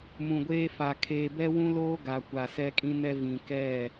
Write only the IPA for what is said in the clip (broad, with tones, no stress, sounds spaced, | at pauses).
m ũ˨ ɡʷ eː˦ f a˨ kʰ eː˨ b ɛ˦ w ũ˦ l oː˦ ɡ a˨ kʷ a˨ s ɛ˦ kʼ ĩ˦ n ɛ˦ v ĩ˨ k ɛ˦˨